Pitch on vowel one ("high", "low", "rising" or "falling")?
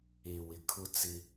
low